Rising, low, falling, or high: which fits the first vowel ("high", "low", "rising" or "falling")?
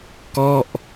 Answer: falling